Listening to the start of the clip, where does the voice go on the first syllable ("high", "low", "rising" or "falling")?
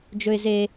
low